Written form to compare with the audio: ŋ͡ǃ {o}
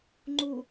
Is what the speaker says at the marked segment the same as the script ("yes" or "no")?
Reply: no